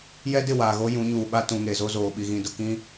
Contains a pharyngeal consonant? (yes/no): no